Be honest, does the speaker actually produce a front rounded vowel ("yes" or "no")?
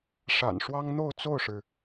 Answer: no